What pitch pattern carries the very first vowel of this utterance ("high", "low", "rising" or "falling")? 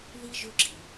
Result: high